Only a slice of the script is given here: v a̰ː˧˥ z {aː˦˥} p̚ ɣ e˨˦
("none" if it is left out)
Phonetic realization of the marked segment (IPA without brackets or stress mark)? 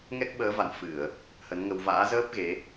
əː˦˥